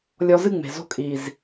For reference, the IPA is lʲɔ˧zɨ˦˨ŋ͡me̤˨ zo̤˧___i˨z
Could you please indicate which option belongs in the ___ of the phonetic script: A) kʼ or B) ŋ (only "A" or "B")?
A